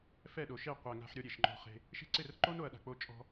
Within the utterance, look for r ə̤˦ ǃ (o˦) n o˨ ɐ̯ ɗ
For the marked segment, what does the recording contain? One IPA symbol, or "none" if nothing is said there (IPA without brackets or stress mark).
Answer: o˦